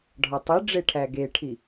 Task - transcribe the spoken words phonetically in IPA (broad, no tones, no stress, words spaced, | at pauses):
ɖʱɒtˤiɖ͡ʐe ʈʰæɡeʈʰi